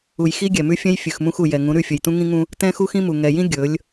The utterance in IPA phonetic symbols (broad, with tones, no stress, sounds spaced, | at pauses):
u˨ j x i˦ ɡʲ ɛ˨ m ʉ˦ fʲ ɛ̃˦ j fʲ ʉ˨ x m ũ˦ x u˨ j ɛ˨ ŋ ũ˨˦ ɾ ʉ˦˨ fʲ ɵ˨ j t ũ˦ ŋ ĩ˦ ŋ ũ˦ | t ɛ̃˦ x u˦ x ĩ˦ m u˨ ŋ ɛ˨ j ĩ˦ ɡʲ ɵ˨˦ lʲ